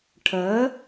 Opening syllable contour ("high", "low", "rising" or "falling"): rising